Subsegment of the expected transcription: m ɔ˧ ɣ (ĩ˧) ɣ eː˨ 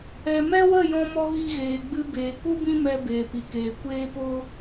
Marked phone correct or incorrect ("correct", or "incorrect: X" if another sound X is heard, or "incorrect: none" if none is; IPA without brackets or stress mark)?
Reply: incorrect: i˧